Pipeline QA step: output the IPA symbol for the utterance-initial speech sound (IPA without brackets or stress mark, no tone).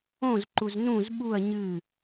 õ